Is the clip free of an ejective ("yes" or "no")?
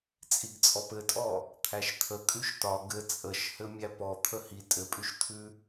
no